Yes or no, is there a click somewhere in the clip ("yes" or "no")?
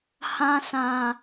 no